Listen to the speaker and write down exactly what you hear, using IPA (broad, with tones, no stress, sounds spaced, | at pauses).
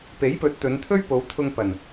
p e˨˥ j p ɵ˨˥ t̚ t̪ ɵ˨˧ n t̪ʰ ɵ˥ ɥ p o˨˧ w t̪ʰ ʊ˧ ŋ p ɐ˨˩ n